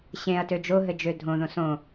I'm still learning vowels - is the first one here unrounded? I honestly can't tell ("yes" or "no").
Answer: yes